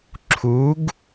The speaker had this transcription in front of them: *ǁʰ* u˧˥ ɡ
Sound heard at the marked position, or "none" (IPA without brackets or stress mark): ǁʰ